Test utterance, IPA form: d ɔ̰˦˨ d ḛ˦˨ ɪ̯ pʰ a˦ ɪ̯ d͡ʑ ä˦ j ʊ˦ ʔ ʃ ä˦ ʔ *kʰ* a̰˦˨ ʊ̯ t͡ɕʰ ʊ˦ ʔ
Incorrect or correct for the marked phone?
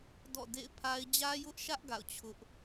incorrect: ɡ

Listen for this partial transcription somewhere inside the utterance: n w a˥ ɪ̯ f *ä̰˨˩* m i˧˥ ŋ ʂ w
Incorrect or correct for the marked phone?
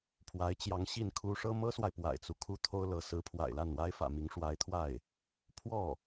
correct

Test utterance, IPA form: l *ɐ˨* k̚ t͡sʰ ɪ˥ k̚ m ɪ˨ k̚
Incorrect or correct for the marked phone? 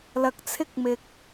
correct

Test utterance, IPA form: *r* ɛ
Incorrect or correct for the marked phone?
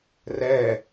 correct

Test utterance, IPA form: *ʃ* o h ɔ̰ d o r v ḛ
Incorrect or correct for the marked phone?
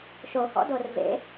correct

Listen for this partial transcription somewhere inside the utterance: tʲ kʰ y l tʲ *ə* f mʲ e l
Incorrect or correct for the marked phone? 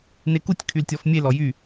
incorrect: ɔ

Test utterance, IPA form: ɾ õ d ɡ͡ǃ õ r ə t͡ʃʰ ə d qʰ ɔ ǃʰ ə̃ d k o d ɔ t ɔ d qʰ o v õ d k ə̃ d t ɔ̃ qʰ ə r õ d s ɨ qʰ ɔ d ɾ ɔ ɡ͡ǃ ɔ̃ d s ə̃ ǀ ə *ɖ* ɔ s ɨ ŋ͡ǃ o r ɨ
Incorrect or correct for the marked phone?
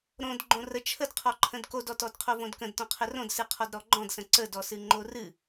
incorrect: d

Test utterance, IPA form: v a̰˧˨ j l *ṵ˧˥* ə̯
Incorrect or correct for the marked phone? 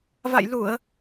incorrect: u˧˩˨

